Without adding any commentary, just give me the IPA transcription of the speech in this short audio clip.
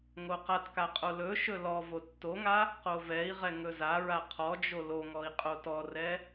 ŋ o q a t k a qʼ o l ɵ ʃ ɵ l ɔ v o tː o ŋ a | q o v ɛ i̯ ʁ ɛ ŋ ɵ z a ɹ a qʰ ɔ d͡ʒ o l o ŋ ɔ i̯ qʼ o t ɔ r ɛ

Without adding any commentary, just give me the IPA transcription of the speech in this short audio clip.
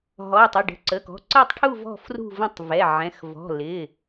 ɦ ɔ˩˧˩ ə̯ tˤ ɪ˩˧˩ ɖ ə̤˩˧˩ ǀ ə˩˧˩ k ɔ̤˩˧˩ ǀ ə˦˨ tˤ ʈʰ u˦˨ v ɔ̤˦˨ f r ṳ˦˨ v ə̃˦˨ tˤ v ɛ˩˧˩ ʕ ɛ̃˩˧˩ x v ɔ̤˩˧˩ l ɪ˩˧˩

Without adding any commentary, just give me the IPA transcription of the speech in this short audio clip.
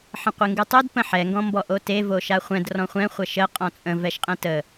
ħ ə̃ qʷ e ŋ ɡ ɯ tˤ o d p ə̃ ħ ɛ ŋ ɡ ɔ̃ m b ɔ ʔ o t e v o ʃ a χʷ ɛ̃ d r ɔ̃ χʷ ɛ̃ χʷ ə ʃ ə qʼ ɔ̃ t͡sʼ ə̃ v ɛ ʃ qʼ ɛ̃ t ə

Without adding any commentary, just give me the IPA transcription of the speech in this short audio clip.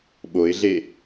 ɓ o ɪ̯ ɮ e

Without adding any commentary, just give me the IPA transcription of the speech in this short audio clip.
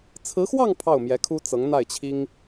t͡sʰ ɹ̩˧˥ x w ɑ˥˧ ŋ pʰ ɑ˥˩ ʊ̯ m j ɛ˧˥ kʰ u˥ t͡s ɤ˧˥ ŋ n̪ a˥˩ ɪ̯ t͡ɕʰ i˥ ŋ

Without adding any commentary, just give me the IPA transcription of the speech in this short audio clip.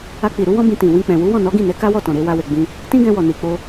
a˧ k͡p i˨ ɾ u˨˦ w ɔ̃˦ b ĩ˧ t ĩ˨ w ĩ˧ k͡p ɛ̃˨ w u˨˦ w ɔ̃˦˨ n ɔ˨˦ ɡ ĩ˦˨ n ɛ˨˦ k a˦ w ɔ˦˨ t ɔ̃˨ ɾ e˧ w a˧ w e˨ ɡ͡b ĩ˧ | t ĩ˦ ɡ ɛ̃˧ w ɔ˨ n i˨ k͡p o˧

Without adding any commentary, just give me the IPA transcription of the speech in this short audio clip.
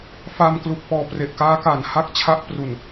f a˧ m k l u˨˩ k̚ p ɔː˨˩ p r e˨˩ ʔ k aː˦˥ k aː˩˦ n h a˥˩ k̚ t͡ɕʰ a˥˩ ʔ p r u˨˩ n

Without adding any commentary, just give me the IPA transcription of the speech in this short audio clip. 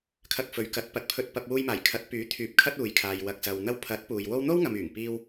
kʰ ɐ˧ k̚ f ɵ˨˧ ɥ k ɐ˨˥ t̚ p ɐ˨˥ t̚ pʰ ɵ˧ t̚ p ɐ˧ p̚ w uː˧ j m aː˨˩ j kʰ ɐ˨˥ t̚ p yː˨˥ t̪ʰ yː˨ p̚ kʰ ɐ˥ t̚ uː˨ j kʰ aː˨ j w ɐ˨ k̚ s ɐ˨ w n̪ ɐ˧ w pʰ ɐ˨˥ t̚ p uː˨ j w o˥ w n̪ o˥ w ŋ ɐ˨ m yː˨˩ ŋ p iː˧ w

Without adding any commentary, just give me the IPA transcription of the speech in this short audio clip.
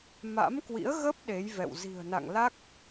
m a̰˧˥ m k w ḭ˧˥ ə̯ ɣ ə˦˥ p̚ ɗ e˨˦ j v ɛ̰˧˨ w z i̤˨˩ ə̯ n a̰˧˨ ŋ l a˦˥ k̚

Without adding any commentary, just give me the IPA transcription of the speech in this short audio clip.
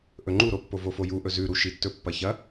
ʔ ɵ ŋ͡ǃ u ɾ o pː o v o f o j u ʔ ɵ z ʉ ɾ u ʃ i tː ɵ pː ɐ ç ɐ

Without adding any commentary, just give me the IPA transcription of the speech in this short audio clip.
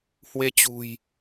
h w e˧ t͡ɕ ṳ˨˩ j

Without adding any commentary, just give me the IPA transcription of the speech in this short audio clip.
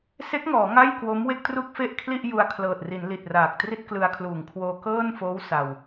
s e˦˥ k̚ ŋ ɔː˩˦ ŋ a˥˩ j k w o˦˥ m w e˥˩ k̚ t r u˥˩ k̚ f e˥˩ ʔ kʰ l i˥˩ ʔ j u˧ a̯ kʰ l ɤː˨˩ t̚ r i˩˦ n l i˨˩ t̚ r aː˨˩ k̚ t r i˥˩ t̚ k l ɯ˧ a̯ kʰ l uː˨˩ ŋ kʰ w oː˧ k ɤː˥˩ n f oː˦˥ w s a˧ w

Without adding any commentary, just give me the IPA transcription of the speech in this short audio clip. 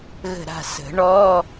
ɣ ə̤˦˨ ɾ a̤˦˨ s ə̤˨˩˦ ɳ ɔ˧˥˧

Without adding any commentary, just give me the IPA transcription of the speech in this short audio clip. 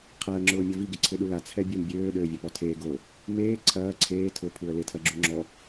qʰ a ə̯ ŋ͡ǁ ʊː mʲ ɐ v i ɡ ɪ ǀʰ ɪ ɗ u l a t͡sʰ ɛ bʲ ɛ m bʲ øː ɗ øː vʲ ɐ p ɔ tʰ eː ɡ o | m eː ǀʰ ɐː ǀʰ eː tʰ ʊ pʰ u ə̯ l ɪ tʰ ɐ ɡ͡ǁ u ŋ͡ǁ ɔ

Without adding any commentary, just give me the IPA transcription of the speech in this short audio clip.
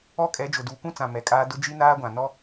ɔ˦ kʼ ɛ˨˦ d͡ʒ ʊ˨ d uː˨ kʷ ũ˦ t͡s ã˨ m ɛ˨ kʼ aː˦ d ʊ˦ d͡ʒ i˦ n aː˦ ɡʷ ã˨ n ɔ˦

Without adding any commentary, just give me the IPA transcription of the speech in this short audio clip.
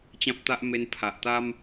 t͡ɕ ã˦ p̚ t̪ a˦ ʔ m e˧ n pʰ a˨ ʔ t̪ a˦ m

